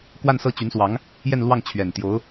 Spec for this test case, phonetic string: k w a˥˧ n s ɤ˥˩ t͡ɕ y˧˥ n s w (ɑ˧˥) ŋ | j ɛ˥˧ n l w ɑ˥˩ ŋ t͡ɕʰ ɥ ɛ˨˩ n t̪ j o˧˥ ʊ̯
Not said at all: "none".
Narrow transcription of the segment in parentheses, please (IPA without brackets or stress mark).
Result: ɑ˧˥